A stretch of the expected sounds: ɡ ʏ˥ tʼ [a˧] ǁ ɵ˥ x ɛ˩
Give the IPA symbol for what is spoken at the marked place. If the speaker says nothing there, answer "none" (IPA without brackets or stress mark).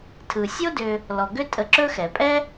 ə˧